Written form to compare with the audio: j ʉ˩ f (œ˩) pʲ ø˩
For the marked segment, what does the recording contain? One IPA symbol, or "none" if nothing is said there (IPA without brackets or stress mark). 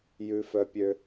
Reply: œ˩